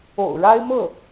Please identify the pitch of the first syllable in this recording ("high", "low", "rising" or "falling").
low